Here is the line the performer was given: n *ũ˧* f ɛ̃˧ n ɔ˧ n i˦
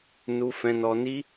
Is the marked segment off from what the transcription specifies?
yes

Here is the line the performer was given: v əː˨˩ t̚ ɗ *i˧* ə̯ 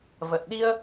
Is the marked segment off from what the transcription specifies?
no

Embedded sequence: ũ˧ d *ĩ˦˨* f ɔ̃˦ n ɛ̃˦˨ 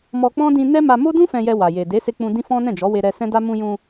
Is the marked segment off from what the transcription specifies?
yes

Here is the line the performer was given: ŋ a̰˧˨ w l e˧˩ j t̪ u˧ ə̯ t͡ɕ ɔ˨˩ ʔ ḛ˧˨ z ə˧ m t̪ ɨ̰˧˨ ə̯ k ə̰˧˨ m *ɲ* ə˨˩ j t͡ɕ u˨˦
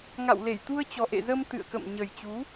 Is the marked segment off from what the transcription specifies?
no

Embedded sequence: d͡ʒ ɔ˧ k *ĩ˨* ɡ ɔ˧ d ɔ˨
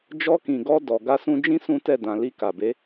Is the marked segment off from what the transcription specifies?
no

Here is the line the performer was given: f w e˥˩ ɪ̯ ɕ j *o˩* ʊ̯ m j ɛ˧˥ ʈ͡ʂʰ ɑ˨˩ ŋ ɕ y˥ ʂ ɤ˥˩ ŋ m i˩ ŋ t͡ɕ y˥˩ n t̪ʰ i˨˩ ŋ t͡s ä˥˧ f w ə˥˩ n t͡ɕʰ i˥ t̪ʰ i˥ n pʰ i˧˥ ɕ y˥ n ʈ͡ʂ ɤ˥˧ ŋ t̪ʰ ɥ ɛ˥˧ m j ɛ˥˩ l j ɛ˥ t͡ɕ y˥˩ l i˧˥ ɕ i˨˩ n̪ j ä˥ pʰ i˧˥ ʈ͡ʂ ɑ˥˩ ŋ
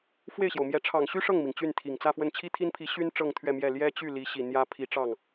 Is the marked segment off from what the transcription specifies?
no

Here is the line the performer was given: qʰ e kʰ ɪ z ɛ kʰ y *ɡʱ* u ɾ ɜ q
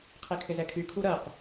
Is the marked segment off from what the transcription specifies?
yes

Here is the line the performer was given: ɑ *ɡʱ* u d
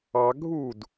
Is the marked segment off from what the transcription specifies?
no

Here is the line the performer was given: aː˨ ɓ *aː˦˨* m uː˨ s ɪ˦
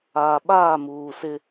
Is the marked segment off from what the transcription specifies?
no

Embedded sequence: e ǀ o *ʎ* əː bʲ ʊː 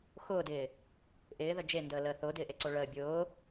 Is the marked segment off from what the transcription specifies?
yes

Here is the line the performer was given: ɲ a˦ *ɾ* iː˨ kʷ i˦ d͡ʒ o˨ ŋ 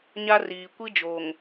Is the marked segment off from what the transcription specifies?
yes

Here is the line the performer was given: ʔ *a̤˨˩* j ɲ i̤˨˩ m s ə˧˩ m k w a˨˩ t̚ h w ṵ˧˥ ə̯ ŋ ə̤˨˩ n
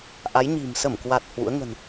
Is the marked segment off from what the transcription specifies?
yes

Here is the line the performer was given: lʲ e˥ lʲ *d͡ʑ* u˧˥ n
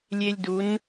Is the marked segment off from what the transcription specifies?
yes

